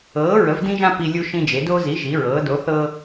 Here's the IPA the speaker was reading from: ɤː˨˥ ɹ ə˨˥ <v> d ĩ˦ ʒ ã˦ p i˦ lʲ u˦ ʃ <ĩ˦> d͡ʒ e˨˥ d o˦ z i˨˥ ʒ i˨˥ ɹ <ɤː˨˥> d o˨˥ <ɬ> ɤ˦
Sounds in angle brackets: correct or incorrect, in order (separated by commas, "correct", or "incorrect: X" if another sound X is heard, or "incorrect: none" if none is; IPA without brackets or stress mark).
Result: correct, correct, correct, incorrect: θ